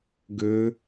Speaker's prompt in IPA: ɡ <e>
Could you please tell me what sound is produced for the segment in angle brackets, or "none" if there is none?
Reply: ø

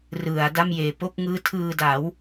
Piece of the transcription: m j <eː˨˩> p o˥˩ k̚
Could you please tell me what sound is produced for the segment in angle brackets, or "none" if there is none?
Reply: eː˨˩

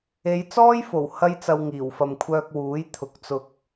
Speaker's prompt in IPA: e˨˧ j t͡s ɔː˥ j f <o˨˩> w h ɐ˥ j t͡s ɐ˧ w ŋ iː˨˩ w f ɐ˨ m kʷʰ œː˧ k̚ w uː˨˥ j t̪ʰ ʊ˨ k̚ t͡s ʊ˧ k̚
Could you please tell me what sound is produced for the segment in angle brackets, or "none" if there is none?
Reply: o˨˩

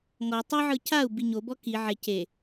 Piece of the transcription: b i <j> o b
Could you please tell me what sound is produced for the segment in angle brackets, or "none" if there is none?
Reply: ɲ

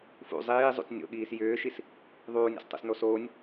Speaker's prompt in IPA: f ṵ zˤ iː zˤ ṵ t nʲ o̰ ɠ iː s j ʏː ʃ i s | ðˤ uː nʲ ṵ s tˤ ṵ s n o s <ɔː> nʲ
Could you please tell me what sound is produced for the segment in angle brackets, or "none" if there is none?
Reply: oː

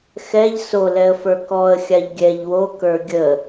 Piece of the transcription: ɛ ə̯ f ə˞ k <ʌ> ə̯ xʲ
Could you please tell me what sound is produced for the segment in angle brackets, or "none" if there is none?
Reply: ɔ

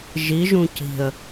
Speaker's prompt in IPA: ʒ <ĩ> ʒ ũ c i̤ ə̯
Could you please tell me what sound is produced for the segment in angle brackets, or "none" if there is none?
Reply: i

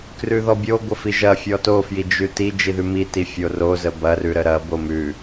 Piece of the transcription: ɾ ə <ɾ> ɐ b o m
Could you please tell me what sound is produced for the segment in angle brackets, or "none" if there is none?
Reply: ɾ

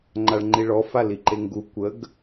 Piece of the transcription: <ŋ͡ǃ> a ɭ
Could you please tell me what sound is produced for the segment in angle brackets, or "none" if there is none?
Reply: ŋ͡ǃ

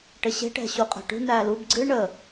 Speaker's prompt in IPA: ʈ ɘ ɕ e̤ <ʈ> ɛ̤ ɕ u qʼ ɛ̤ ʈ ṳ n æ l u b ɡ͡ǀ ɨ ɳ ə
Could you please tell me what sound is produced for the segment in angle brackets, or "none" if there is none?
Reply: ʈ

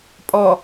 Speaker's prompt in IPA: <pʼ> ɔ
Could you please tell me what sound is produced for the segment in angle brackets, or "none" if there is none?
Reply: pʼ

